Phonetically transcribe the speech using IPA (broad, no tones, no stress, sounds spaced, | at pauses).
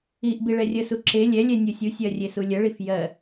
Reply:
i ʔ b i ɭ ɛ rʲ ə s u ǁ e lʲ ɛ lʲ ɛ nʲ u sʲ u sʲ ɜ rʲ e s u lʲ ə ɭ i f j ɜ